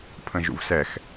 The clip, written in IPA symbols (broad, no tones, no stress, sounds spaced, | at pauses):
pʰ ə̃ ʒ ṵ v s ɛ x